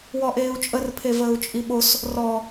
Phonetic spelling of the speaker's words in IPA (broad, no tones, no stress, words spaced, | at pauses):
wɔʔeːu̯t͡ʃʼər pʰevəːu̯t͡ʃʼiɓos | rɔ